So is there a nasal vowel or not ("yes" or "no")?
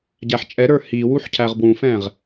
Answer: yes